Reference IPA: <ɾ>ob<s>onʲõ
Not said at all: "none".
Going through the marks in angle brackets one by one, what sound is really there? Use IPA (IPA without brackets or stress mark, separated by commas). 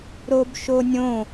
ɾ, ʃ